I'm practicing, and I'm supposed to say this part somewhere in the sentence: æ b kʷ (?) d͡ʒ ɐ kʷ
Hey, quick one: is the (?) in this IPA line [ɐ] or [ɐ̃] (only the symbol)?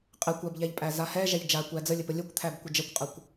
ɐ